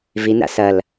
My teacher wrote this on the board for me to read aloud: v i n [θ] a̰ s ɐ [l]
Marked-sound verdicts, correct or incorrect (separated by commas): incorrect, correct